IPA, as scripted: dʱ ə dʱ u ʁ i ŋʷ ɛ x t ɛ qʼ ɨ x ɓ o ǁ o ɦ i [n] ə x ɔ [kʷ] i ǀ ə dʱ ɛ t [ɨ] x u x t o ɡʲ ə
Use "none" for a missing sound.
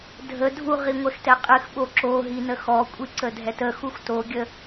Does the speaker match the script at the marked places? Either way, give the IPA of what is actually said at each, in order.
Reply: n, kʷʼ, ə

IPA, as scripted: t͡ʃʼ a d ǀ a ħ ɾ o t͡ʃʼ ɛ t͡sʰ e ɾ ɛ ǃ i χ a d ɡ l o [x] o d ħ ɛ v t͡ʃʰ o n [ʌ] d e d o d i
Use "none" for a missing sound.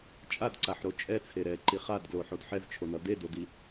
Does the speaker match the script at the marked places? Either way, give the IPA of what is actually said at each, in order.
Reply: ħ, ʌ

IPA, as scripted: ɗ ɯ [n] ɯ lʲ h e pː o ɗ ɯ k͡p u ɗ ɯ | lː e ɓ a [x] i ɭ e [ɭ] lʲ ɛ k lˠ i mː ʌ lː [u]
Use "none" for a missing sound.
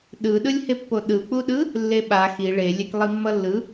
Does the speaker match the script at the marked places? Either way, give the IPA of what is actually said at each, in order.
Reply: ɗ, x, none, ɯ

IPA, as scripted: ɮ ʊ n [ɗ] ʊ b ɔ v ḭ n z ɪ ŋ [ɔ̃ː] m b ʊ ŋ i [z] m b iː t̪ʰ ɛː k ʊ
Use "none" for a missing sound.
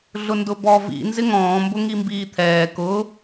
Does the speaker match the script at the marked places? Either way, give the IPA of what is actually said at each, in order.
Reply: d, ɔ̃ː, none

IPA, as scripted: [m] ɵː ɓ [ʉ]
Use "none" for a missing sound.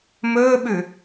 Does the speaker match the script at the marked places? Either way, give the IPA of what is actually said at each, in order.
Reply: m, ʉ

